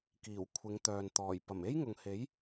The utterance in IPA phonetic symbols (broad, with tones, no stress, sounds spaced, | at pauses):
k iː˨˩ w kʷʰ ɪ˨˧ ŋ t̪ œː˨ n t̪ ɔː˨˩ j p ɐ˨˩ m e˥ j ŋ ʊ˨ ŋ h e˨˥ j